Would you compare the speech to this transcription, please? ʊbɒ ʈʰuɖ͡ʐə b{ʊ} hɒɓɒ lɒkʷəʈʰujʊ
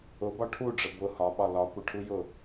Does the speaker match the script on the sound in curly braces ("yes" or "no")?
yes